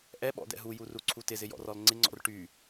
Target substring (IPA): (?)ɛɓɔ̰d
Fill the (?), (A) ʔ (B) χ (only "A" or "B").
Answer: A